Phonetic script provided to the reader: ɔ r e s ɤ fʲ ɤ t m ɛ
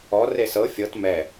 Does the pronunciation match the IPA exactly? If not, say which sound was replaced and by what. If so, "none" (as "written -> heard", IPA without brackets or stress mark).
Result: none